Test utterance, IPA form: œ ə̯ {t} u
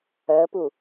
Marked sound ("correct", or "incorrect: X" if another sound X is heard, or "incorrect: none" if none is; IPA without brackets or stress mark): incorrect: p